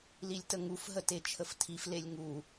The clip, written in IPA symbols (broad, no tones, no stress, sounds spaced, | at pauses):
l i lʲ t ə ŋ u f ɦ ə t e t͡ʃʰ ə f tʰ i f l e lʲ ŋ u